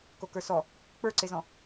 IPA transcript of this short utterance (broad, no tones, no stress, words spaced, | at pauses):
kokə˞sɔ | k͡pə˞ǀezɔ̃